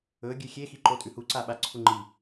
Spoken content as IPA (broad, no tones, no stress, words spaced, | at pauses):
ɵɡʲʉ xʲexiǃo tʼʉhuǀa ɓaǀʰuŋ͡ǃi